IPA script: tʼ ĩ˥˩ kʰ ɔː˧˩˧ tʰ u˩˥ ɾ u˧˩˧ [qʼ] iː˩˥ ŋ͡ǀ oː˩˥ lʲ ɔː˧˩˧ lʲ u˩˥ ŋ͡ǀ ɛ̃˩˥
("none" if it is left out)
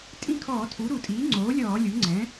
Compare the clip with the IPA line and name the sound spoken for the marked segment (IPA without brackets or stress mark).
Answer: tʼ